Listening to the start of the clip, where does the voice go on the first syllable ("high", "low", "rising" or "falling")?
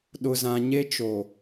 low